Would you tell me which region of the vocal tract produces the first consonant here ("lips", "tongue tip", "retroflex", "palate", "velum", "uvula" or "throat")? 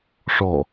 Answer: retroflex